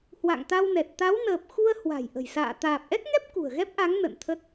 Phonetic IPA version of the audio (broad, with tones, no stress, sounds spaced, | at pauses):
h w a̰˧˨ ŋ t̪ a˧ w n ɛ˨˩ t̚ t̪ a˨˦ w n əː˨˩ p̚ x u˧ ə̯ h w a̤˨˩ j ʔ ə̤˨˩ j s a̰ː˧˨ t̪ aː˨˩ p̚ ʔ ɛ˦˥ k̚ ŋ ɛ˦˥ p̚ k ṳ˨˩ ə̯ ɣ ɛ˦˥ p̚ ʔ a˨˦ ŋ n ə̰˧˨ n t̪ʰ ə˦˥ t̚